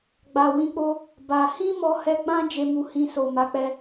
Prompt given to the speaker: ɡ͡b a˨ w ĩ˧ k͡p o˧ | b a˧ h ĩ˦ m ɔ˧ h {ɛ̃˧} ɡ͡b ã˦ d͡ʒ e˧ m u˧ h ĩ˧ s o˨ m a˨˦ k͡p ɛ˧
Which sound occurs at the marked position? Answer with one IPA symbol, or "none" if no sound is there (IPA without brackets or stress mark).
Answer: ɛ˧